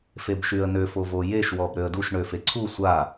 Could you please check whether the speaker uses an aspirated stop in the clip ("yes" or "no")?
yes